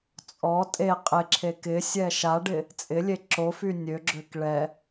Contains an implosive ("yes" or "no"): no